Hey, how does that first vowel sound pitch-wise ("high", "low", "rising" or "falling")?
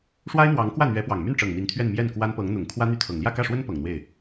high